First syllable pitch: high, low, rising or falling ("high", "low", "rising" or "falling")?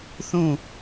falling